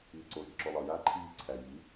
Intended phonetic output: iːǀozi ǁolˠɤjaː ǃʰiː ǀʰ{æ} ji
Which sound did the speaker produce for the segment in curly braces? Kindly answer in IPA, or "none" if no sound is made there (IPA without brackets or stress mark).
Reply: æ